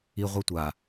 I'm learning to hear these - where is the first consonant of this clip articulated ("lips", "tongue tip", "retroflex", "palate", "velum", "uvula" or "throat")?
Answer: uvula